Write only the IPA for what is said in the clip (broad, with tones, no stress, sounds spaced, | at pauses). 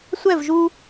sʷ ɛ˦˨ v ʒ u˧